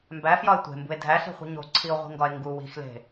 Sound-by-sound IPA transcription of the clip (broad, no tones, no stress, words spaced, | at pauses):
mbæfjɒe̯ tʷe̤mbṳe̯ dʱæɬe̤χʷi̤ ɲo̤ǀʰio̯ʁʷi̤ŋɡɒe̯ ŋɡu wi̤xle̤